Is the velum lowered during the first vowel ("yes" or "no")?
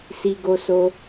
no